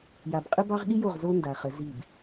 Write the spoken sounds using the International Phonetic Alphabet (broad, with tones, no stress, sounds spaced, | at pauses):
j a˨ b qʼ ə˦ b ɑ˦ ʁ ɠ i˦ j o˦˨ ʁ z o˦ n d a˨ χ ə˨˦ z i˦˨ b